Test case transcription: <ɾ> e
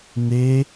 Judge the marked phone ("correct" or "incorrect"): incorrect